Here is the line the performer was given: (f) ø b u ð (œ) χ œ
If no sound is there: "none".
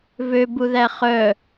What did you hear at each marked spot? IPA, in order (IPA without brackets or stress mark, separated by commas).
v, æ